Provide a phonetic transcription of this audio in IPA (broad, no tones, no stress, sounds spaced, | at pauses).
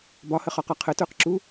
b ɒ h ə χ ɒ q ɒ qʰ ə t ə˞ q ǁ u